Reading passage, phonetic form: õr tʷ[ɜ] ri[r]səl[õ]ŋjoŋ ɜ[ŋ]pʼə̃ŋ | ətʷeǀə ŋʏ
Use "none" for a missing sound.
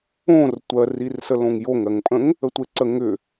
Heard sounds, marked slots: ɜ, r, õ, ŋ

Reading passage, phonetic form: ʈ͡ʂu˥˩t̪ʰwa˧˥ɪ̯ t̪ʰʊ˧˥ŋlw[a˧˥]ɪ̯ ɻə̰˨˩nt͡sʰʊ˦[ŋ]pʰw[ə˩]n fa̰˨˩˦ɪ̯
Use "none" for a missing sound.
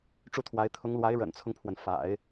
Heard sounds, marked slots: a˧˥, ŋ, ə˩

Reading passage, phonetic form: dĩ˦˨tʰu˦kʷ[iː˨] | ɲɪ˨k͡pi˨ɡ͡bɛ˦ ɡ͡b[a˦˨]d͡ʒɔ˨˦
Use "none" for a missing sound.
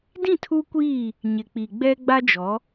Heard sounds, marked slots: iː˦˨, a˦

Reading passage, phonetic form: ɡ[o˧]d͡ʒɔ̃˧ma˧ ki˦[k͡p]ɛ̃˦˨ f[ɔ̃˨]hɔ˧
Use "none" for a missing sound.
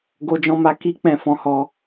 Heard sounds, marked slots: o˧, k͡p, ɔ̃˨˦

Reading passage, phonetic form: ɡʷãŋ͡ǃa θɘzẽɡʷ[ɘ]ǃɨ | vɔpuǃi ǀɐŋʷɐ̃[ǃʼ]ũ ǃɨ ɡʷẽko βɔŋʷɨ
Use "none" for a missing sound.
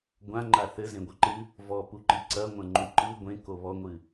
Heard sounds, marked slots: ɘ, ŋ͡ǃ

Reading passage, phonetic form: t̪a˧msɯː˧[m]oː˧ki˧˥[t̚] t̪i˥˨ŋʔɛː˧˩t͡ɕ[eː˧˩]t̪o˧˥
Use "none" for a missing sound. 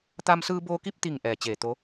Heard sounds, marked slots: b, p̚, eː˧˩

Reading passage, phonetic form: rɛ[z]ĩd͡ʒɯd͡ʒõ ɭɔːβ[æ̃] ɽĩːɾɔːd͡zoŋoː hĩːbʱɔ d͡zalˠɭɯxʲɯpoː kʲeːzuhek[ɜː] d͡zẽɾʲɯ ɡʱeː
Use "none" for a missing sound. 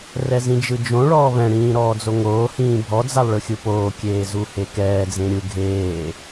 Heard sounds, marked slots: z, ɛ̃, ɛː

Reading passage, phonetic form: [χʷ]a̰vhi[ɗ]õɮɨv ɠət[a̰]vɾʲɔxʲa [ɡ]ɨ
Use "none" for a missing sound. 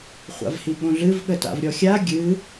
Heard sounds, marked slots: χʷ, ɠ, a̰, ɡʲ

